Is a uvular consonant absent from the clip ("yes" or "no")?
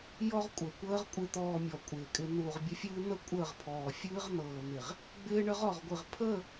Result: no